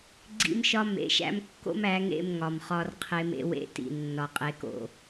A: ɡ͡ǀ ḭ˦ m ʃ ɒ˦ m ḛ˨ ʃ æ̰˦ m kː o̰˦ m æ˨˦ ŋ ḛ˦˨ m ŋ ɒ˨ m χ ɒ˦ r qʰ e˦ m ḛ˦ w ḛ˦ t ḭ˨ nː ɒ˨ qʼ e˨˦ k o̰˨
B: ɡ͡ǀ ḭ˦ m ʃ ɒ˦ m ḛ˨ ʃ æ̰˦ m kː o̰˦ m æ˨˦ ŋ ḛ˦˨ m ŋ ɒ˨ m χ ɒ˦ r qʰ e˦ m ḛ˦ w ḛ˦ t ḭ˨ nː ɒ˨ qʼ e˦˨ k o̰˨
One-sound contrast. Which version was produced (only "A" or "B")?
A